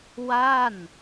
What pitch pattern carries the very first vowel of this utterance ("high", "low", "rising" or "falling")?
falling